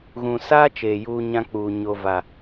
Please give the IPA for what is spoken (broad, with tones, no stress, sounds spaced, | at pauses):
ɣ ũ˨ s aː˦ t͡ʃ eː˨ j uː˦ ɲ ã˦ k͡p uː˨ ɲ o˨ v a˨